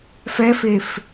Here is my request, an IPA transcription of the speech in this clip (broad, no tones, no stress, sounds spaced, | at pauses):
f ɛ f e f